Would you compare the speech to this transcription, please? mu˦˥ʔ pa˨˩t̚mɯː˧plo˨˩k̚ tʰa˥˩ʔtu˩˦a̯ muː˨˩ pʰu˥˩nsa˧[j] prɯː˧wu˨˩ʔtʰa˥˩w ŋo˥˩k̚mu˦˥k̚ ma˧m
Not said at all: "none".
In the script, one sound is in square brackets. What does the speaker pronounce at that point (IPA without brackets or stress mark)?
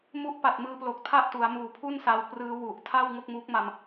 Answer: w